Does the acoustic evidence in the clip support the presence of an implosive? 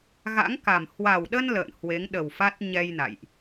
yes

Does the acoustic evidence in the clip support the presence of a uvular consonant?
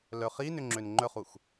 yes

